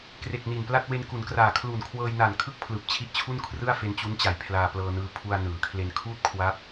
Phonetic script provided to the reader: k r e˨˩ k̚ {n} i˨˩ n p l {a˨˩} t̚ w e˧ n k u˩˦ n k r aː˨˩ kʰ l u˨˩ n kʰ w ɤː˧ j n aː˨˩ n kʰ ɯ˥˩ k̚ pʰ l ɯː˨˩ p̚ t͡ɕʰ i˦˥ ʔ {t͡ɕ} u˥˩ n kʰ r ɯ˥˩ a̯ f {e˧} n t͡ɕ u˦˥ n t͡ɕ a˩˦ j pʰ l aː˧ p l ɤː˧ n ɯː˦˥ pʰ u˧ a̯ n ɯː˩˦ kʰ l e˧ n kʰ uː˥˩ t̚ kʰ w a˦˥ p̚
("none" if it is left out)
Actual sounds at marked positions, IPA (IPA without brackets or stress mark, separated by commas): n, a˥˩, t͡ɕʰ, e˧